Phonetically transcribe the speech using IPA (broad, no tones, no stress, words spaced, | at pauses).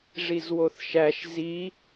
ʐizwoθʃæʃ zi